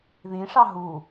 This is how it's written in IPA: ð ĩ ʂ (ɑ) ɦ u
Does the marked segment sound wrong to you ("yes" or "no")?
no